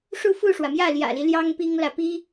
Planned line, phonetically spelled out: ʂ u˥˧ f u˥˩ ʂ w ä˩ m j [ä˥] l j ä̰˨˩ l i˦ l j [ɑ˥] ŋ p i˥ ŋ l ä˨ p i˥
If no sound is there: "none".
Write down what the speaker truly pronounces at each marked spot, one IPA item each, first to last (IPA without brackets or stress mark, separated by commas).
ä˥˩, ɑ˥